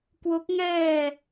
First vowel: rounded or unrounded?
rounded